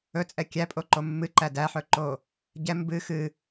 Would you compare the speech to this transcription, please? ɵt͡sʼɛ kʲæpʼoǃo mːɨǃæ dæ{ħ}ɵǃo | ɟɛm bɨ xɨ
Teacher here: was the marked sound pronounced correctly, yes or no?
yes